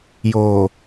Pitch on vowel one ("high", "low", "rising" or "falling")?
low